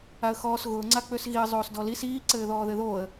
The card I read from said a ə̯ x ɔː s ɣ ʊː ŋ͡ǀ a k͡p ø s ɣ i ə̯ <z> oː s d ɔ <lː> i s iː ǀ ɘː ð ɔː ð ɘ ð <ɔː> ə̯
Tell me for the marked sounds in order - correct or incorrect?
incorrect, incorrect, incorrect

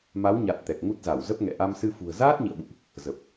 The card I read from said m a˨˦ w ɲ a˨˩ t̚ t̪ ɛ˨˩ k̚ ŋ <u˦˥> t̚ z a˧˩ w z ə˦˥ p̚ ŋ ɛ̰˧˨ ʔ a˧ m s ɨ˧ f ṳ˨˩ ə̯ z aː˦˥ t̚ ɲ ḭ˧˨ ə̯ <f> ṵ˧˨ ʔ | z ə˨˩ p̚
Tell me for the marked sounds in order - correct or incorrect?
correct, incorrect

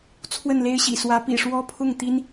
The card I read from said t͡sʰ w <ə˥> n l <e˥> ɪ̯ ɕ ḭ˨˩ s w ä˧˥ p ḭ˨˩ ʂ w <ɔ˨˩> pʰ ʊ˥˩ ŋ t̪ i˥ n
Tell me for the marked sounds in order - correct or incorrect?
incorrect, correct, incorrect

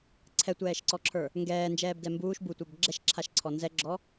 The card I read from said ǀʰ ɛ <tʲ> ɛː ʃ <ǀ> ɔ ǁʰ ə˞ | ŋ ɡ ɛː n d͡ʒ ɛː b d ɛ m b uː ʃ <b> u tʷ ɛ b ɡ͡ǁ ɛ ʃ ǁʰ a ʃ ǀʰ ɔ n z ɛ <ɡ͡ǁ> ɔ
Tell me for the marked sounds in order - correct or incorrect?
incorrect, correct, correct, correct

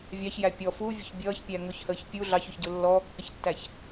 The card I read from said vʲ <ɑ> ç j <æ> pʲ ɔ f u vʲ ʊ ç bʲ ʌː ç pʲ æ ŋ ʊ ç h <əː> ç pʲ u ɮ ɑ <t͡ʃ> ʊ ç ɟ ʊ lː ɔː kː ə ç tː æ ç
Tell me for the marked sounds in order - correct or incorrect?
correct, correct, correct, incorrect

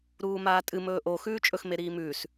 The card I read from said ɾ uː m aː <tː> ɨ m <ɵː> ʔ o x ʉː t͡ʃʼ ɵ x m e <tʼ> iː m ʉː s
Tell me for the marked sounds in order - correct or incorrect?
incorrect, correct, incorrect

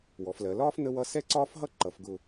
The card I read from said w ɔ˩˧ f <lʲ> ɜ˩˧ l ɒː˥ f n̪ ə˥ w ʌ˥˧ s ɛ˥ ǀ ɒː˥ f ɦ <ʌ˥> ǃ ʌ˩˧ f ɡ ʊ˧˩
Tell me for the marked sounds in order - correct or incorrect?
incorrect, correct

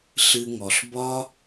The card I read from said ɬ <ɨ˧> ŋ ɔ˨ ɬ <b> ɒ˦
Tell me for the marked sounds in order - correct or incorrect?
correct, correct

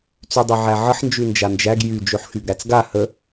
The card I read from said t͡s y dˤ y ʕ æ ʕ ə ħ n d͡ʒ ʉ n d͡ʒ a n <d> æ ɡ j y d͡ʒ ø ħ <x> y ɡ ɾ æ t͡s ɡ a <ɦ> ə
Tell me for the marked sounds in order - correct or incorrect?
incorrect, correct, incorrect

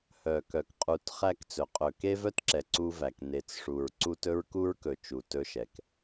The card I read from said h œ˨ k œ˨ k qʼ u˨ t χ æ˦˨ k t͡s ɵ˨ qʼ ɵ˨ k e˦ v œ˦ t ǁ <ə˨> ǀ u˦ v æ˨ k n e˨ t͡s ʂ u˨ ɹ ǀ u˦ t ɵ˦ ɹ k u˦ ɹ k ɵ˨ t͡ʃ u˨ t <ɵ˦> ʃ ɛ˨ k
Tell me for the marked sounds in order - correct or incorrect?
incorrect, correct

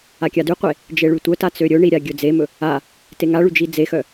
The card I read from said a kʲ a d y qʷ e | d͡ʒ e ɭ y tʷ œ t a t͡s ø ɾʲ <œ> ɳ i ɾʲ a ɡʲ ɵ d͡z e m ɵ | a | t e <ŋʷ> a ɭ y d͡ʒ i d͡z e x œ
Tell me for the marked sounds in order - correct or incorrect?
incorrect, incorrect

